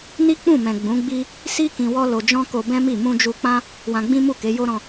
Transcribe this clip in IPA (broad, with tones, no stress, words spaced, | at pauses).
ni˦k͡pũ˦˨mɛ̃˨ ɡ͡bũ˨˦ɡ͡bi˦ | si˦ kĩ˧wɔ˦lo˧ d͡ʒɔ̃˦ko˧bɛ̃˦mi˦˨ mũ˧d͡ʒu˧k͡pã˦ | wã˧ɡ͡bĩ˦ mu˦˨ke˨˦jo˦ ɾɔ̃˧